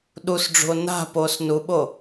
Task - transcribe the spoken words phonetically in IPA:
ɗusɖ͡ʐṳo̯ na̤poːs nuɓo

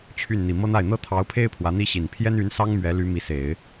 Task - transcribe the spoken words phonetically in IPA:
t͡ɕʰy˥˩n n̪i˨˩mɤ˥n̪a˥˩ɪ̯ n̪ɤ˥t̪ʰɑ˧˥ʊ̯pʰe˥ɪ̯ pʰwä˧˥n̪i˥ɕi˨˩n pʰjɛ˥ny˧˥nsɑ˥ŋ mɥɛ˧˥ly˧˥ mi˧˥se˨˩˦ɪ̯

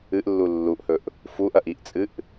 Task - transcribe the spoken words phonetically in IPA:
ɨʔlːu lːuʔhɵʔ | fuʔɐʔ iʔt͡sʼɨʔ

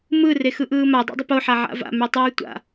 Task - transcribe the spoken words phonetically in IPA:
mɯ rexɯʔɯːma dˤa̰dˤɪpo ħaʕa̰va̰ mytˤyːtʷa̰

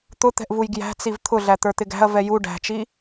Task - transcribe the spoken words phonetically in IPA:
t̪ʊt̪ɛ̤ʔvuj ɡjæ̤t͡siv t̪ʰʊɮæ t̪ə˞t̪ɪɡæ̤ɐ̯ vɛju ɖæ̤t͡ʃi

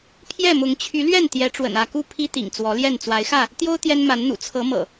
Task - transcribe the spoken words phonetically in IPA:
pʰjɛ˥˨mʊ˨˦ŋ t͡ɕʰy˨˦lɥɛ˥˨n t̪jɛ˨˦ʈ͡ʂwə̰˨˩nä˥˨ku˥˨ pʰi˦t̪ḭ˨˩ŋ t͡swɔ˨˦ljɛ˥˨n t͡swa˨˦ɪ̯xä˥˨ | t̪jo˦ʊ̯ t̪jɛ˦nma˨˦nn̪ṵ˨˩ t͡sʰɤ˨˦mɤ̰˨˩

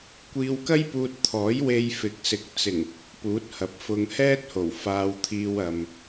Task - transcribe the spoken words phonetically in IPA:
kʷiː˧wkɐ˥jpuː˧t̚t̪ʰɔː˨˥j we˧jfɪ˨˥k̚sɪ˨˥k̚ t͡sɪ˨˩ŋ | puː˨˥t̚hɐ˨p̚fʊ˧ŋ hɛː˥t̚ho˨˩w faː˧wt̪ʰiː˧wɐ˨m

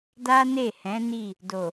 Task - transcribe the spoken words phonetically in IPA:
da˦ne˦˨hɛ̃˨˦ ni˦˨ | do˨

